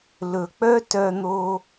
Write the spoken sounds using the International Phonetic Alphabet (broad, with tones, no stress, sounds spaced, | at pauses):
l ɵ˨ k͡p œ˦ t œ˧ n̪ o˧